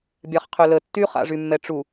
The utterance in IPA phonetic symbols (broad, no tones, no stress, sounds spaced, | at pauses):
bʲ a χ qʰ ø l ə tː y χ a̰ ʐ y mː ɛ ʈ͡ʂ u